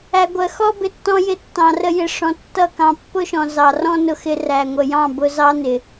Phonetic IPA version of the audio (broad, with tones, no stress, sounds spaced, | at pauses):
æ˨ ɡʷ ɜ˨ x ɔ˦ b ɪ˨ tː ɔ̃˧ j ɪ˧ tː ɑ̃˨ r ə˧ j ɪ˨ ʂ ɔ̃˨ tː ʌ˦˨ k ɑ̃˧ pː ʊ˦ ʃ ɔ̃˨ z ɑ˨ r ɔ̃˦ n ʊ˧ x ɪ˧ r æ˨ ŋʷ ə˨ j ɑ̃˦˨ b ʊ˧ z ɑ˦ n ɪ˨